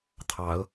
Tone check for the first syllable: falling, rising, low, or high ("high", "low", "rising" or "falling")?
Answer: rising